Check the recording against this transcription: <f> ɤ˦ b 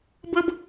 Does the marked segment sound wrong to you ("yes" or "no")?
yes